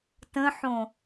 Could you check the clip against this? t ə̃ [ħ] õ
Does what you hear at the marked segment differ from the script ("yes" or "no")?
no